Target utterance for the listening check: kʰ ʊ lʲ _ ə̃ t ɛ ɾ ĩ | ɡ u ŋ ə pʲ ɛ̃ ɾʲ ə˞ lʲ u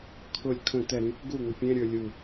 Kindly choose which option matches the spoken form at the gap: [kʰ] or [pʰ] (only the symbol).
kʰ